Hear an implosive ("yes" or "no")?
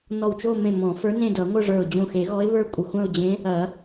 no